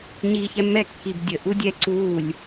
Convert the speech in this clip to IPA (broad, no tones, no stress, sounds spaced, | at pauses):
ɲ iː ç ɛ mː ɛ kː i b dʲ ə ʔ u dʲ ɛ ǀ uː lʲ